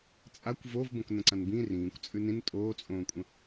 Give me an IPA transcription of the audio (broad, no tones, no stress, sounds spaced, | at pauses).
t͡sʼ a kʷ v o v b õ k n ə̃ ǀ ã n b ĩ r ĩː kʷ t͡sʼ ʉ n ĩ n tʼ oː t͡sʼ õː kʷʼ ə̃